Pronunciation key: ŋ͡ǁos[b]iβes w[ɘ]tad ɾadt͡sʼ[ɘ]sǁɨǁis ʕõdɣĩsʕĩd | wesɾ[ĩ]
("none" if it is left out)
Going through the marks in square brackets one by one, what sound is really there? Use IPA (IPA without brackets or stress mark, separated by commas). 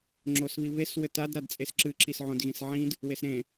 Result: β, ɘ, e, ẽ